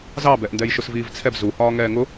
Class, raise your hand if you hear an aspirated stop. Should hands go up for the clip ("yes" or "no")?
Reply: yes